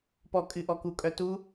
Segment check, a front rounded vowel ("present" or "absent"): present